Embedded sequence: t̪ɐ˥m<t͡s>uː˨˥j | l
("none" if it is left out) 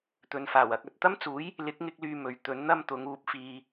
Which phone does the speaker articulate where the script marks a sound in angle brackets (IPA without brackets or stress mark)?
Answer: t͡s